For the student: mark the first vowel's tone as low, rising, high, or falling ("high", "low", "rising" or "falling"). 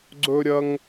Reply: high